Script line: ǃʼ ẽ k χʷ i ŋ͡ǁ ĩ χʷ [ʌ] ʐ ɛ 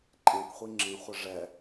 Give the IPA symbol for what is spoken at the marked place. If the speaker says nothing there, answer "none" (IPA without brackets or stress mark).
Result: ʌ